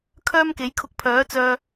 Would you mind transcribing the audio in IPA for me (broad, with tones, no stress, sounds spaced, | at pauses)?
kʰ œː˥ m k e˨˥ j kʰ ʊ˧ k̚ pʰ œː˨˥ t͡s œː˧